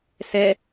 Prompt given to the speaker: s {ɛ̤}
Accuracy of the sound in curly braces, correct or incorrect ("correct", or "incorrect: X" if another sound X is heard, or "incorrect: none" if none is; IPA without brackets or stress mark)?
incorrect: ɛ